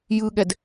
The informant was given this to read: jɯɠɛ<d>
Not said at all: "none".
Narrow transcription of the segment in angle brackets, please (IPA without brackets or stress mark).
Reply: d